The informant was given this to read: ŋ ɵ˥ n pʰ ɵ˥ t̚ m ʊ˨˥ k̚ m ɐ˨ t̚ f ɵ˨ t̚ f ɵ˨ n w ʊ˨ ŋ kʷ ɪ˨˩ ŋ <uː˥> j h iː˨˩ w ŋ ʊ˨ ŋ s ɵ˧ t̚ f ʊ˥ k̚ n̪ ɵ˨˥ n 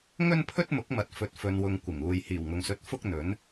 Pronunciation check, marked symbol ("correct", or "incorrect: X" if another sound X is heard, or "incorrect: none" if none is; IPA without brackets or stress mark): incorrect: uː˨